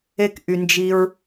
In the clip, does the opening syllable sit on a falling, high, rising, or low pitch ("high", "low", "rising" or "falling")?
high